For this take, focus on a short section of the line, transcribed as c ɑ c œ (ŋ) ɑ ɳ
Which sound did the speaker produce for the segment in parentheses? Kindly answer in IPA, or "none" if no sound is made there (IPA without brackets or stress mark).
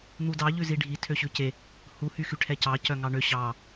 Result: ŋ